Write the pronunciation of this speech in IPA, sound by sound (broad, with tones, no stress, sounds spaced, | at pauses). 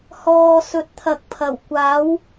h ɔː˨ s ɵ˨˥ t̚ t̪ʰ ɐ˨ k̚ pʰ ɐ˨˩ w kʷ aː˨˥ w